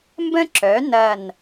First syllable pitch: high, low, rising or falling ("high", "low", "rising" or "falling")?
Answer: high